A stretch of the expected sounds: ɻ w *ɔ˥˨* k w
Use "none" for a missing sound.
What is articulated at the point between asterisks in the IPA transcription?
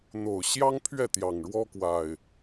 ɔ˦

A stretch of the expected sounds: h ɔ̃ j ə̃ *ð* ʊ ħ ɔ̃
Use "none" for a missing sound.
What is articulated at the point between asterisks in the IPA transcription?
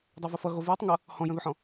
ð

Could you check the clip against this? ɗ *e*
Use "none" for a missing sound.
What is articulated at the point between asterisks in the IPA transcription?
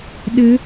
ɘ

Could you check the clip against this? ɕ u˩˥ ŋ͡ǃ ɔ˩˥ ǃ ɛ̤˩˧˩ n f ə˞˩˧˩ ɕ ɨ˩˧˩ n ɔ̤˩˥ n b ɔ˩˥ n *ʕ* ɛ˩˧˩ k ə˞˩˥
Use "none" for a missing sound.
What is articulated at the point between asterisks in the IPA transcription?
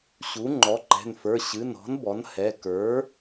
h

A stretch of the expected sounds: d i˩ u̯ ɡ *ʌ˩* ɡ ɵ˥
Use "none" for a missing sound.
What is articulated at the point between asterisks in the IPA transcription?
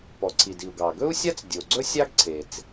ɑ˩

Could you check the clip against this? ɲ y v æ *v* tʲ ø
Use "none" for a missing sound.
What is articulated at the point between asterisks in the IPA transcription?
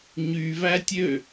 none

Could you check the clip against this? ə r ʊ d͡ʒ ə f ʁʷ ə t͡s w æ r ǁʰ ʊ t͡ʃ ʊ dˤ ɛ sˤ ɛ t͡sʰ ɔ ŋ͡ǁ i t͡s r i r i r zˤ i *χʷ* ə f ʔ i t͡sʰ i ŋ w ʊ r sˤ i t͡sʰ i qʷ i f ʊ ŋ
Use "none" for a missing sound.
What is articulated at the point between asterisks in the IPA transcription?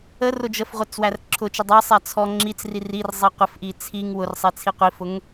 qʷ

